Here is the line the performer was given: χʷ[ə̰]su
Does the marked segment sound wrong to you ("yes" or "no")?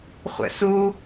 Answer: no